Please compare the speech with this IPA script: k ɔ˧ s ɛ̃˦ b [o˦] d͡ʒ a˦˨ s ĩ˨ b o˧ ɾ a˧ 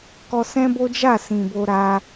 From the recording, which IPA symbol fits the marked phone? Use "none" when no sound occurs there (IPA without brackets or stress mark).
o˦